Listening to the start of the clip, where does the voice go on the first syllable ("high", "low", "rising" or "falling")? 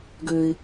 low